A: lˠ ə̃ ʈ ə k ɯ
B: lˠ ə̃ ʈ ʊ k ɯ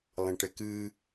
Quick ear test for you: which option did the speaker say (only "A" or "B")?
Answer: A